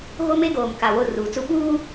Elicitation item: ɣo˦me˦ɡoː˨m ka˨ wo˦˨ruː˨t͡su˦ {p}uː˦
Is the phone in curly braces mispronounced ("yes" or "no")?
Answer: yes